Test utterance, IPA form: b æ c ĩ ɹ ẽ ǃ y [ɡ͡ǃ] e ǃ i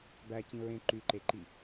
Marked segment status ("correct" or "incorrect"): incorrect